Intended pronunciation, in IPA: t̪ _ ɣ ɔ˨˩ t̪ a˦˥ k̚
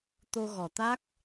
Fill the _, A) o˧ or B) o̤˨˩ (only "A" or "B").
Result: A